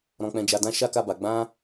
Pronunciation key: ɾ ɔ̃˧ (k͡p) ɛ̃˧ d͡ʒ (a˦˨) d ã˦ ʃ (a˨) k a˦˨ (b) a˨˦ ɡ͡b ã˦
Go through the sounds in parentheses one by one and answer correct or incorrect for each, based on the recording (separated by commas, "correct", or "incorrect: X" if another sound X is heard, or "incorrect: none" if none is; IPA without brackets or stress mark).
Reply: correct, incorrect: a˧, incorrect: a˦, correct